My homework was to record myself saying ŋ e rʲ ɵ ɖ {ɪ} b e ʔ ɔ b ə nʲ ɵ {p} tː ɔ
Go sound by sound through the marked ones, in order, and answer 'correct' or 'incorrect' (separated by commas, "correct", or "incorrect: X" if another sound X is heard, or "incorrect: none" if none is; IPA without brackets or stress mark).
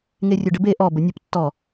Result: incorrect: ə, correct